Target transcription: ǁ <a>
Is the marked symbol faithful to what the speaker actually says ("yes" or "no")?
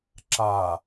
yes